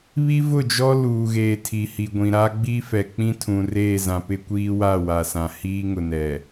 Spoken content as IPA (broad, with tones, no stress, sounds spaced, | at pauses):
β i˦ v ʊ˦˨ d͡ʒ ɔ˦ l uː˨ ɣ eː˨ tʰ i˨ h i˨ ɡʷ ĩ˨ ɾ a˦ ɡ͡b i˦ f ɛ˨ k͡p ĩ˦ tʰ ũ˨ r eː˦˨ z ã˨ p ɪ˦ kʷ iː˦ w a˦˨ w a˨ s ã˨ h iː˦ ŋ ʊ˨ n ɛ˨